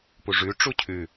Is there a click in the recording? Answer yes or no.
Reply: no